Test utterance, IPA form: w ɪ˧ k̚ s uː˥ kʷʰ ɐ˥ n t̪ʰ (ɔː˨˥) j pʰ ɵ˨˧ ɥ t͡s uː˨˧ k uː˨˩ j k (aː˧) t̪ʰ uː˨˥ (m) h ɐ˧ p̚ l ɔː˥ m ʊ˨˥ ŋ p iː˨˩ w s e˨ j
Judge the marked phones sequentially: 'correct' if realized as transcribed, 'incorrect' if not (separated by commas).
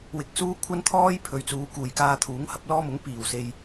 incorrect, correct, incorrect